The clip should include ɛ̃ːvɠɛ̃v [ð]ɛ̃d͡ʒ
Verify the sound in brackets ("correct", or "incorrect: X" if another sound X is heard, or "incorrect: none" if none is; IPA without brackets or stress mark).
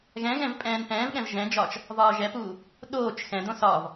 incorrect: ʒ